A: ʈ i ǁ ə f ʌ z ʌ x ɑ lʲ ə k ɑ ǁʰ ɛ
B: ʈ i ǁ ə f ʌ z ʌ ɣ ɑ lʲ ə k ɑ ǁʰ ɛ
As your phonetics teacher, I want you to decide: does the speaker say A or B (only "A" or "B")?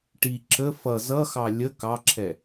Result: A